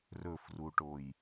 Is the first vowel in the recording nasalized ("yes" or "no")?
no